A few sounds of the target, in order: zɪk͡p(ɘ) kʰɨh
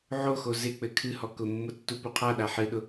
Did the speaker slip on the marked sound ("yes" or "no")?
no